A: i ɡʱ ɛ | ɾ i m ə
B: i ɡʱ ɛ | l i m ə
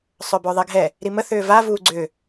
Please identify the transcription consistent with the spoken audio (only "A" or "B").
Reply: A